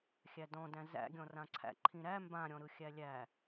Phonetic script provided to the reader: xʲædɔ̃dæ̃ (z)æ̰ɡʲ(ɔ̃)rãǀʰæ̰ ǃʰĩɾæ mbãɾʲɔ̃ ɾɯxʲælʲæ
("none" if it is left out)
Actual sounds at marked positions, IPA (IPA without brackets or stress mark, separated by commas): z, ɔ̃